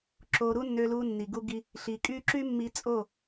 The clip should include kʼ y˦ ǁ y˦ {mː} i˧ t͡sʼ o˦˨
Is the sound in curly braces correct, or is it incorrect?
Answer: correct